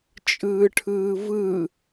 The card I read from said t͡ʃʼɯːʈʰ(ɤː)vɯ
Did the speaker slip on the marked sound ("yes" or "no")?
yes